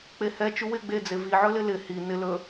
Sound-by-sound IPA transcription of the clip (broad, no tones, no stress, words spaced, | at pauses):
k͡pehɛ t͡ʃuwɪ ɡ͡be d͡zevi ʕɵlɪlɪ hi nɪ lɵ